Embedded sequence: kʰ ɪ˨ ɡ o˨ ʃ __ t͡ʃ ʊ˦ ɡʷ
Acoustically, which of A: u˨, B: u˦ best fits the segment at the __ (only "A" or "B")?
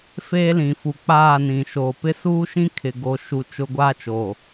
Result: A